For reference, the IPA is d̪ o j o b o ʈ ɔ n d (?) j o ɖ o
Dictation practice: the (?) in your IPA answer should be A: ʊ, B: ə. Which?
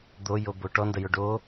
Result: B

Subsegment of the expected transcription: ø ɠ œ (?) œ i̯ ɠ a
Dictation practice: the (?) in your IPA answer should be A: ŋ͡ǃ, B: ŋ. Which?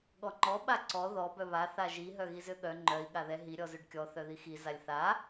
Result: A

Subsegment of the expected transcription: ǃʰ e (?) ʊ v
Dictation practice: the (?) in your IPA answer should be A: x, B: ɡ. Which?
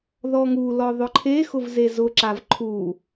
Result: A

